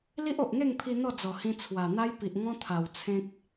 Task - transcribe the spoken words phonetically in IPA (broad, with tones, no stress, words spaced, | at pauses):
li˦ʔo˨ʔŋe˥˧ŋpʰi˧ n̪ɔ˥˧d͡zɔ˨˩hĩ˧ t͡sʰwa˨˩ n̪a˦j pi˨ʔŋɔ̃˦ t̪ʰa˨˩w t͡sʰẽ˦k̚